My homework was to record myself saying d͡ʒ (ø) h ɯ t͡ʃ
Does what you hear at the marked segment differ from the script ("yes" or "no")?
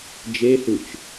yes